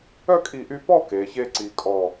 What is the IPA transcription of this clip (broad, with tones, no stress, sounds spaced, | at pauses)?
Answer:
œ˥˧ kʼ i˧˩ ʔ y˧ p ɔ˥˧ k eː˩˧ ç eː˥ ǀ iː˧ kʼ ɔ˥˧